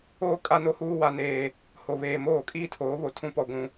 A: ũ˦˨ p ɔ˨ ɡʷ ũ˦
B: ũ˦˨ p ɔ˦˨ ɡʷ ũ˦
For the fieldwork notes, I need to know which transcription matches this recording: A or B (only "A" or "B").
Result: B